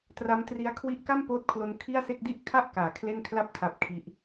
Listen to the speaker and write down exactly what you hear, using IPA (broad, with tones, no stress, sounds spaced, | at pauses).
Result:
t r a˦˥ m t r i˦˥ a̯ kʰ w i˦˥ ʔ k a˥˩ m p oː˦˥ t̚ kʰ l o˧ n kʰ i˥˩ a̯ s e˥˩ k̚ d i˥˩ ʔ kʰ a˥˩ ʔ k aː˨˩ kʰ l e˥˩ n kʰ l a˥˩ p̚ tʰ a˦˥ p̚ kʰ i˦˥ ʔ